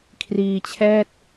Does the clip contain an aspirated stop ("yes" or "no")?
yes